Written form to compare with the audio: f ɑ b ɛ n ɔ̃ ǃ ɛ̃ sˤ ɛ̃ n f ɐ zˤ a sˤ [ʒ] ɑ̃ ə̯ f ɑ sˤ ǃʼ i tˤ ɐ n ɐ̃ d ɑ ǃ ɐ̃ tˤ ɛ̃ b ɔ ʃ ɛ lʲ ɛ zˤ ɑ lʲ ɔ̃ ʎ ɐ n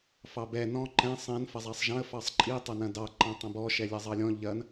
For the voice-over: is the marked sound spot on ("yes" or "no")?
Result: yes